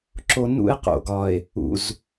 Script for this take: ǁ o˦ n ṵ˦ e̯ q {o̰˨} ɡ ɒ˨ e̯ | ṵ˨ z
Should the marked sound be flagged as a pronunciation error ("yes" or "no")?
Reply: no